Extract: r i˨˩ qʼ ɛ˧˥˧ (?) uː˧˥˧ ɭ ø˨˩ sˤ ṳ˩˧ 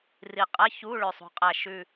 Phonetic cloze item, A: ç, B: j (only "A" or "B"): A